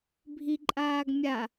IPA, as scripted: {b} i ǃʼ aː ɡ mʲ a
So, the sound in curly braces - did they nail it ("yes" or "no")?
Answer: no